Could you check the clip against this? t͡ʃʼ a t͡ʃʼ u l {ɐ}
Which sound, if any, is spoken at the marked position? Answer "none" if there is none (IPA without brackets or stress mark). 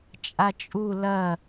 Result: ɐ